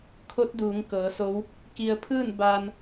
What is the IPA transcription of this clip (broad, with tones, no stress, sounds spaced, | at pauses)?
kʰ o˧˥ t̚ d uː˩˧ ŋ k ɤː˩˧ s o˧˥ w | k i˧ ə̯ pʰ ɯː˥˨ n b aː˧ n